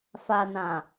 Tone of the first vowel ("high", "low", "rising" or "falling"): low